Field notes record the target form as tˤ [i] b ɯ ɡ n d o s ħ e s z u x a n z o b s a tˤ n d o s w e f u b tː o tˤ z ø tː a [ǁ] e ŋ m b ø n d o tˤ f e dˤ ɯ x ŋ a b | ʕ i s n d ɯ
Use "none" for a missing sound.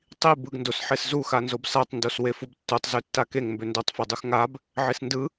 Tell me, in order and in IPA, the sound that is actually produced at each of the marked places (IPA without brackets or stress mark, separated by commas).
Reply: i, k